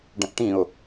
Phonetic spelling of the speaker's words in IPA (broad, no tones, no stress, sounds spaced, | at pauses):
ɖ ə̃ ʔ ʈ ĩ ʊ̯